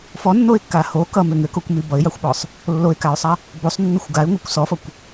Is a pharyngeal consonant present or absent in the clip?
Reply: absent